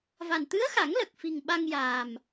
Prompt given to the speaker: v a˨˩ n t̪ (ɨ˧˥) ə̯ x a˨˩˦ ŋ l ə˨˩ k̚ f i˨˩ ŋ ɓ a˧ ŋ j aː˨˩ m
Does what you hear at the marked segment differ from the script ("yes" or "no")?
no